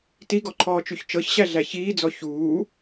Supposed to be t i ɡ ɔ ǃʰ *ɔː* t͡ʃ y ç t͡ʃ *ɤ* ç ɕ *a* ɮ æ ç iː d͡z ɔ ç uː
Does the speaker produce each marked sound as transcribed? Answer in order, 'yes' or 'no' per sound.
yes, yes, no

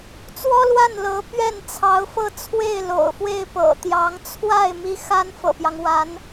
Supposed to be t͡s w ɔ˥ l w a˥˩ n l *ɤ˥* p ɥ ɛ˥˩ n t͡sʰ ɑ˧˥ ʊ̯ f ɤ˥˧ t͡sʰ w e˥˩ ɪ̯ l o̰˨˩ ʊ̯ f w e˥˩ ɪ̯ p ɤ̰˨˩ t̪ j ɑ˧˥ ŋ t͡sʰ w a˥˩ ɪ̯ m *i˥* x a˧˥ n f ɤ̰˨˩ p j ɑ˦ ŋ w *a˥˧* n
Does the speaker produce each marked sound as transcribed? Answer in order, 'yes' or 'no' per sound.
no, yes, no

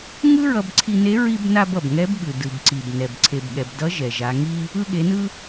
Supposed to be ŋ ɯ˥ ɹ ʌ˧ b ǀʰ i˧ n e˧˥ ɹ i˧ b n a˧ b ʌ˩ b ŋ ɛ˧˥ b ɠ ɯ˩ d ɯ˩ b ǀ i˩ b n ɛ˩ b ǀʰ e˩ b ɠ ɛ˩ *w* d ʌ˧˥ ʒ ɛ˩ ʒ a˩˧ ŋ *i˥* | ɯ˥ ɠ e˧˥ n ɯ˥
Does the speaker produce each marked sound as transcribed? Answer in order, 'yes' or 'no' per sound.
no, yes

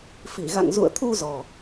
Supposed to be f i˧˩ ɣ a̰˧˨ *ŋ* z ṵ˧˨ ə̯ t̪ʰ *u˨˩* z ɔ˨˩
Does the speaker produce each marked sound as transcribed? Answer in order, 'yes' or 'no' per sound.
yes, no

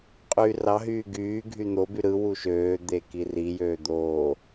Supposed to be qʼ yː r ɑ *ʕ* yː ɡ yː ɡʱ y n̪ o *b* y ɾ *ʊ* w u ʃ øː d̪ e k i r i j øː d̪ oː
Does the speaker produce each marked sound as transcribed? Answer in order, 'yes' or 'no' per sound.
no, yes, no

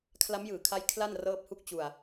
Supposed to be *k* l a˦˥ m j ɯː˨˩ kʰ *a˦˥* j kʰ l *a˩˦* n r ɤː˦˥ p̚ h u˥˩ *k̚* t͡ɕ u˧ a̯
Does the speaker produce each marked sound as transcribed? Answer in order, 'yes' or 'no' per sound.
no, yes, no, yes

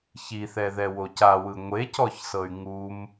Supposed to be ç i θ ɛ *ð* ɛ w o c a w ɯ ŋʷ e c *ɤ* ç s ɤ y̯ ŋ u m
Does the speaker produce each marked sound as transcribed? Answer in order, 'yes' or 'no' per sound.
yes, no

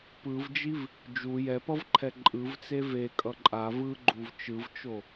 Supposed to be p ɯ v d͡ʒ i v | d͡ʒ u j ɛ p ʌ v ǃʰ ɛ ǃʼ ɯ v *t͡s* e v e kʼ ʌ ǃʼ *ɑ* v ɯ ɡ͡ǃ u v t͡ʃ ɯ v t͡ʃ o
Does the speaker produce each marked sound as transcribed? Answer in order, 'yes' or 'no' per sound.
yes, no

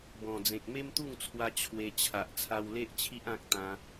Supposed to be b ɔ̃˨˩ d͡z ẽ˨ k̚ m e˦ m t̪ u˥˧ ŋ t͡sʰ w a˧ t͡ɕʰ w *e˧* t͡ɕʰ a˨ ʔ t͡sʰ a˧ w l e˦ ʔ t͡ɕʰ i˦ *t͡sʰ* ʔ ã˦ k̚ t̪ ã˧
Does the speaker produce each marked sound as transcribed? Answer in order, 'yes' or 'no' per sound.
yes, no

